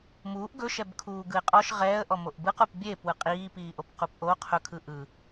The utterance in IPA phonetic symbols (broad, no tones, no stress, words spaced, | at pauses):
muːʔ ɡɵʃɛbkʰuː ɡɯɪ̯qʼɔʃ ʁɛːə̯ʔɔmoʔ bɯqup bʲe pwɯqʼiːpiːʔob qupʔo qʰɵkʰɯ ʔɯ